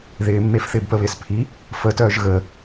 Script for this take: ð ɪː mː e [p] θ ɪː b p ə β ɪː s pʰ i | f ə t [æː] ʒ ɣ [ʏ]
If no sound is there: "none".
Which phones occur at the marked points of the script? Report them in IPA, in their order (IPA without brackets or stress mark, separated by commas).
f, œː, ə